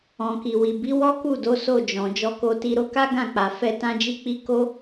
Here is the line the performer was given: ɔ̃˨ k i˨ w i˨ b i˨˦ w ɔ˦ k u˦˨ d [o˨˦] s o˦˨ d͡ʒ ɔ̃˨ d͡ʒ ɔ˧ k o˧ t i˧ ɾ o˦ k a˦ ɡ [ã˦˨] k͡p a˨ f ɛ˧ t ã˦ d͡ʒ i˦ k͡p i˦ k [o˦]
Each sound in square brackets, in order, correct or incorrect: correct, correct, correct

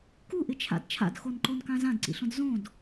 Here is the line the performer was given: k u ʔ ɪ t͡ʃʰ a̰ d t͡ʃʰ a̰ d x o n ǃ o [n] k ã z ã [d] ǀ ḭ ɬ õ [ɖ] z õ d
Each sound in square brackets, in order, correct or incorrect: correct, correct, incorrect: d

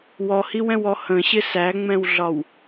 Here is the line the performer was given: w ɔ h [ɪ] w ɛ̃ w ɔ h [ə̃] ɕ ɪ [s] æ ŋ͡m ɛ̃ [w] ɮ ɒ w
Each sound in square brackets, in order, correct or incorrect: incorrect: i, correct, correct, correct

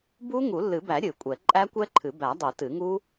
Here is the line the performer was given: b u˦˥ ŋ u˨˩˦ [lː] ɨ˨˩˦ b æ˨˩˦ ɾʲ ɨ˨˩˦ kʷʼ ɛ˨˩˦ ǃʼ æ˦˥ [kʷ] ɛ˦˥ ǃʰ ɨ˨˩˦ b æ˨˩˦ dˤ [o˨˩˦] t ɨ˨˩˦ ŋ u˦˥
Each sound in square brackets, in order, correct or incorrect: correct, correct, correct

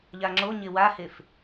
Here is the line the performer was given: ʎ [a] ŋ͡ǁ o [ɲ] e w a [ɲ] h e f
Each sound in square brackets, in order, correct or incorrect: correct, correct, incorrect: none

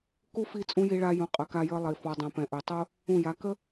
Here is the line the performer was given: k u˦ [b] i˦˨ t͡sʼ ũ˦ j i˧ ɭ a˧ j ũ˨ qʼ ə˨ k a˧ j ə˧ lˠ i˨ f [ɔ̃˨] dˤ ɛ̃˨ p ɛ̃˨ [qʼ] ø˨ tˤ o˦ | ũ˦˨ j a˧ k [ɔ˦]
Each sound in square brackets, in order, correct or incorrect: incorrect: f, incorrect: ɔ˨, incorrect: ʔ, incorrect: ə˦

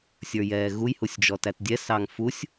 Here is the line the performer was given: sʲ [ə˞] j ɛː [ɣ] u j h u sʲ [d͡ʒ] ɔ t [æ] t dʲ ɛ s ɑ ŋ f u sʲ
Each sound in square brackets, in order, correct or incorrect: correct, correct, correct, correct

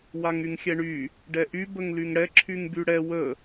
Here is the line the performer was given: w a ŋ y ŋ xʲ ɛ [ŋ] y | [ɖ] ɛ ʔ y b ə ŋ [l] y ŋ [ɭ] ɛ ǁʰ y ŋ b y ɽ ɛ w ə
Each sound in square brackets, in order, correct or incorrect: incorrect: ɳ, correct, correct, incorrect: ɽ

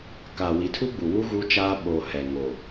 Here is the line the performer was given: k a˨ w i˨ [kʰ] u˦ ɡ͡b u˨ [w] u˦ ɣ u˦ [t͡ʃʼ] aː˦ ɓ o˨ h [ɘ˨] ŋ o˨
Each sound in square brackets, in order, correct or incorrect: incorrect: tʰ, correct, incorrect: t͡ʃ, incorrect: ɛ˨

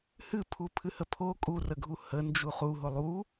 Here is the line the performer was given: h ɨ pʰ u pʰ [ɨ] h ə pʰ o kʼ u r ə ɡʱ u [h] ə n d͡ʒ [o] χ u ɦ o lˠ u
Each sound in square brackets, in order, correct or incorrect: correct, correct, incorrect: u

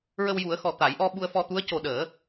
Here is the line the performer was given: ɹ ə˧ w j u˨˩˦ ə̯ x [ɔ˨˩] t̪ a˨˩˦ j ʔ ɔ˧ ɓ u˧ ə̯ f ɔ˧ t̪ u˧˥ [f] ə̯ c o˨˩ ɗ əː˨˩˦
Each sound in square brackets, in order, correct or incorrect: correct, incorrect: none

